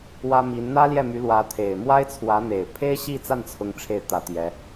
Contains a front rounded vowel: yes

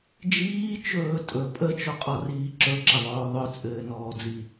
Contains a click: yes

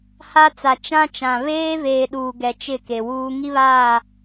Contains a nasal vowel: yes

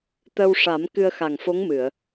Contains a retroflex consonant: yes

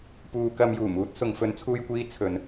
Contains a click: no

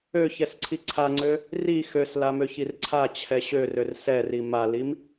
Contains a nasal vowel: no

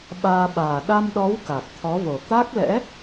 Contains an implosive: yes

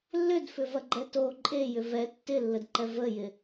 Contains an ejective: yes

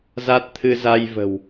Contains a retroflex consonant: no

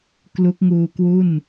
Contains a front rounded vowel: no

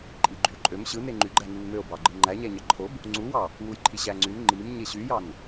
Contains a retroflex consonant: no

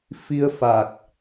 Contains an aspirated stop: no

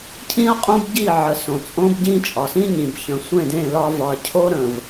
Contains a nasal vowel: yes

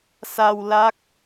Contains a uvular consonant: no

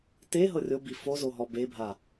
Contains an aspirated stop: no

